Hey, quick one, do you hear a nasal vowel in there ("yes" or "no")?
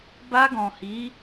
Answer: yes